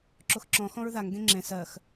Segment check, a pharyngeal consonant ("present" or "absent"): absent